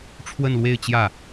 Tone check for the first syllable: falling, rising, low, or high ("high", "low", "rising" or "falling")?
falling